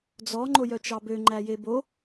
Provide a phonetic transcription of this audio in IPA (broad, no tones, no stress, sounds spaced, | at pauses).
d͡z ɔ ŋ͡ǃ o j œ t͡ʃ ɑ b ø ŋ͡ǃ æ j e b o